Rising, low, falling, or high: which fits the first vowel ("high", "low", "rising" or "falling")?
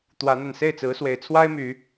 rising